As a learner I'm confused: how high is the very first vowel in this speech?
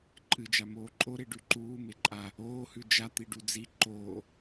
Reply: high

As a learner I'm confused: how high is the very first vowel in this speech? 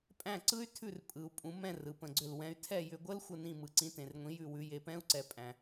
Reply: low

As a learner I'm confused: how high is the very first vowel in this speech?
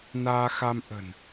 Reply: low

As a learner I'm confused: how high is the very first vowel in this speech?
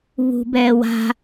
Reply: high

